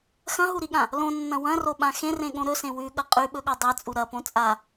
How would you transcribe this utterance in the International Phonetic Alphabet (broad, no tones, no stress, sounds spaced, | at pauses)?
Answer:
x ɐ̃ ɦ u ɾ i ɠ ã | l õ nː ɐ̃ w ɐ̃ r o ɓ ã x ẽ r ẽ ɠ õ ɾ ɵ s ẽ w ʉ ɠ ɐ qʼ ʉ ɓ ɵ ɠ o dˤ e t͡sʼ u ɾ ɐ p õ t͡sʼ a